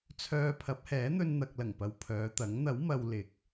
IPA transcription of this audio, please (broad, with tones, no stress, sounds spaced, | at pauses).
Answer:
t͡sʰ œː˧ pʰ ɐ˨˥ p̚ h ɛː˨˥ n̪ ɵ˧ n n̪ ɐ˨ k̚ l ɐ˨˩ ŋ p ɐ˨ w pʰ œː˨˧ t̪ ɐ˨˥ ŋ n̪ ɐ˨˥ w m ɐ˨ w l ɪ˨ k̚